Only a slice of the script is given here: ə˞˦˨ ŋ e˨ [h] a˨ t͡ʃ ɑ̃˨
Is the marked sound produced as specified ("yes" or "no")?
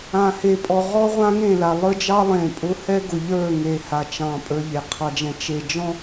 yes